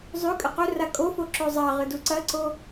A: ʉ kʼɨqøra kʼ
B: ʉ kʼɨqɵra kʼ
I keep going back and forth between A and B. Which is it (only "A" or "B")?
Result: B